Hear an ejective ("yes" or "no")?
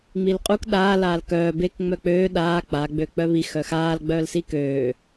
yes